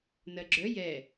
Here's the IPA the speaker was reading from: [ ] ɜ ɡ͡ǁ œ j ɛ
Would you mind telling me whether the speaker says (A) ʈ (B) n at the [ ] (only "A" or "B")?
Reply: B